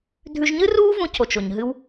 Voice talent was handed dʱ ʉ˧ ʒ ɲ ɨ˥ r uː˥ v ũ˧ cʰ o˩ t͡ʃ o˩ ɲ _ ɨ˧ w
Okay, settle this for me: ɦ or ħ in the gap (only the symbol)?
ɦ